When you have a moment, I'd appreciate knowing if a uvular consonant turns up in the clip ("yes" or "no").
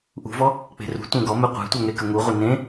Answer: yes